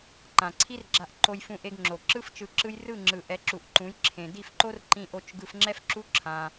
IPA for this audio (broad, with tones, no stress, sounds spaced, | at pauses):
ǃ ã˨ ǀʰ i˦ r ɡ͡ǁ a˧ ʔ ǃ o˧ j f ũ˧ ʔ e˧ ɡ ŋ͡ǁ o˨ ǁ ɯ˦ f t͡ʃ ɯ˧ ǁ ɯ˦ j r ɯ˦˨ ŋ͡ǁ ɯ˨ ʔ ɛ˨˦ ǁ u˨ ʔ ǃ ũ˨˦ j ǁʰ ẽ˨ d i˦˨ f ǃ o˦ r ǃ ĩ˧ ʔ o˧ t͡ʃ ɡ ɯ˧ f ŋ͡ǁ ɛ˦ f ǁ u˦ ǁʰ ã˧